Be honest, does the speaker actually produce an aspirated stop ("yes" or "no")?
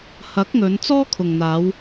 yes